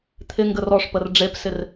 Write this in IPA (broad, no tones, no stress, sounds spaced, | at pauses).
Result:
t̪ʰ ɪ ŋ ɡ ə r ɔ ʂ p ə r ɖ͡ʐ e p s ɪ r